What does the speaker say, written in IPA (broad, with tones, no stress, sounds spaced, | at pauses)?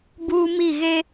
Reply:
b uː˦ m i˦˨ ɣ e˦